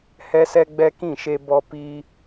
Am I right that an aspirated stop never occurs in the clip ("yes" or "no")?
yes